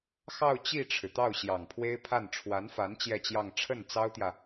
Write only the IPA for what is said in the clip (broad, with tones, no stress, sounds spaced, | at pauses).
x ɑ˥˧ ʊ̯ t͡ɕ i˥˩ ʈ͡ʂʰ ɻ̩˩ t̪ ɑ˥˩ ʊ̯ ɕ j ɑ˨˩ ŋ pʰ w e˥ ɪ̯ pʰ a˥˩ n ʈ͡ʂʰ w a˧˥ n f a˧˥ n t͡ɕ j ɛ˥˧ t͡ɕ j ɑ˥˧ ŋ ʈ͡ʂʰ ə˥˩ n t͡s ɑ˥ ʊ̯ t̪ j ä˨